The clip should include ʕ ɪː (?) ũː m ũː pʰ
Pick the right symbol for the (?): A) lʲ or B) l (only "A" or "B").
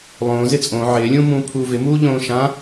A